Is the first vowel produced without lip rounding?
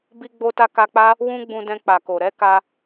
yes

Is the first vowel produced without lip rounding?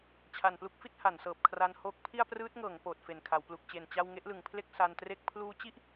yes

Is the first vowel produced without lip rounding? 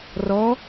no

